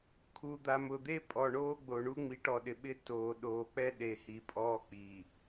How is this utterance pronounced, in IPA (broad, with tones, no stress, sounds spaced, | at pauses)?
kʰ u˨ d̪ a˨ m ʊː˨ d̪ e˦ pʼ ɔ˨ ɳ oː˦ ɡ͡b o˨ ɳ u˦ ŋ͡m i˨˦ ʈ ɔ˨ ɗ ɪ˨ ɓ ɪ˦ t oː˨ ɗ oː˨ k͡p ɛ˦ ɗ e˨ h i˨ pʼ ɔː˦ k͡p i˨